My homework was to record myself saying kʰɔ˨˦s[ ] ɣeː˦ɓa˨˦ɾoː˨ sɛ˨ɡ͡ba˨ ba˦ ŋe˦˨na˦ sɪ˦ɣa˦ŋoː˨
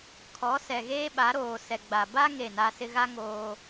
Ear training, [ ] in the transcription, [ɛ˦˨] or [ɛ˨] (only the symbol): ɛ˨